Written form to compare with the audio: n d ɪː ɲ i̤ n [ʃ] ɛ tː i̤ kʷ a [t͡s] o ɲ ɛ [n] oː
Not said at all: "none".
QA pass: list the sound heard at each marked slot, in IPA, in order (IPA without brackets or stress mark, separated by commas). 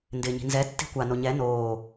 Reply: z, n, n